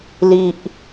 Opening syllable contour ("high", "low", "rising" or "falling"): low